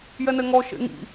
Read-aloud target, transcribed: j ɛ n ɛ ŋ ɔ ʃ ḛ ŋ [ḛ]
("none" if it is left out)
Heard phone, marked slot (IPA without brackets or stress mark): ḭ